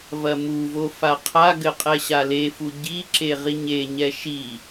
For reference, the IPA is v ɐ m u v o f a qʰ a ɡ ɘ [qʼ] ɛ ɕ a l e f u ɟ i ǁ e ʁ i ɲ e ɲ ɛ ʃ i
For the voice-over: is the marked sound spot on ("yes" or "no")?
yes